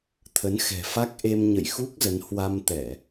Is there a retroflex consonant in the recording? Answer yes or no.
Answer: no